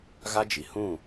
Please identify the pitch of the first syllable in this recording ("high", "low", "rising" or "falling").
high